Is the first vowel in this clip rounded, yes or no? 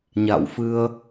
no